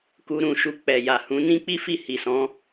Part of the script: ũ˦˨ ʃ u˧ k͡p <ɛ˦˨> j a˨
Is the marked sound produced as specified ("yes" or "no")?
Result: no